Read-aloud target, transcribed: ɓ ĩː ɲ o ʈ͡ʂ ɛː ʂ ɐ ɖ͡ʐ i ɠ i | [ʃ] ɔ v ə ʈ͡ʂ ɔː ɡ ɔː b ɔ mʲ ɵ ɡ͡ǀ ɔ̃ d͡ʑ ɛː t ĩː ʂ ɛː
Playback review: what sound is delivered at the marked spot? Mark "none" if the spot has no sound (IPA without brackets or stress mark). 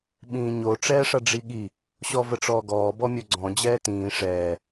ɕ